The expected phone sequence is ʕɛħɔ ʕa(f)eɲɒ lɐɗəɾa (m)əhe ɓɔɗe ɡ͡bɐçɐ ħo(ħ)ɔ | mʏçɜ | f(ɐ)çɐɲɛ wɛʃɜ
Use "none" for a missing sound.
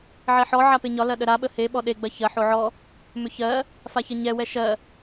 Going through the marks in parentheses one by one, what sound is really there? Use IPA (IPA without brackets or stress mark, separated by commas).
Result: p, ɓ, ʕ, a